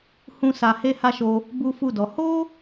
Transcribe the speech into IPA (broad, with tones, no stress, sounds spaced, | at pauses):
h ũ˦ s a˧ h e˦ h a˦ ʃ o˧ | b u˦ f u˦˨ d ɔ˨˦ h o˦